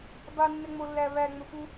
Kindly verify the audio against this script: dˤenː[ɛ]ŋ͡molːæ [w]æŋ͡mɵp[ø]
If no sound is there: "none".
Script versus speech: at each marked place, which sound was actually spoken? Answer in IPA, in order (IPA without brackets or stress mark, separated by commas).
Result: ɛ, β, u